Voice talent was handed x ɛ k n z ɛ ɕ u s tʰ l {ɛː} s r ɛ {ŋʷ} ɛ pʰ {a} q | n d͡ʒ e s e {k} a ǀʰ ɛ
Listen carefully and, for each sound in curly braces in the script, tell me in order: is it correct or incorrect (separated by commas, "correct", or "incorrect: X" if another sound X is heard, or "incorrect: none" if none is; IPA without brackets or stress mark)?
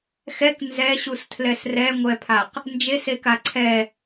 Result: incorrect: ɛ, correct, correct, correct